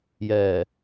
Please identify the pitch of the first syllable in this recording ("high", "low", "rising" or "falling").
low